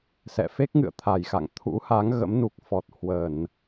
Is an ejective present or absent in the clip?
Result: absent